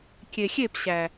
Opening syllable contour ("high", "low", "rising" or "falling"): low